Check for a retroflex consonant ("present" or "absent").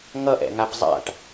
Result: present